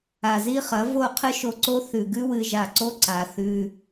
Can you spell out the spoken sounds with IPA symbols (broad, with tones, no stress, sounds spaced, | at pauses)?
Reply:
a˨ z i˦ χ ɐ˨˦ v o˦˨ qʰ ɨ˦ ʃ o˧ ǀ o˦ θ ʉ˨ ɡ ʉ˦ w ɨ˧ ʒ a˨ ǀ o˦ ǀ a˨ θ ʉ˧